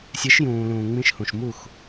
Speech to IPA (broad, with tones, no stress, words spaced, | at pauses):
sʲɛ˨˦ʃjũː˨lũː˨ ŋ͡mĩ˧ʃhũ˨ʃmu˦˨x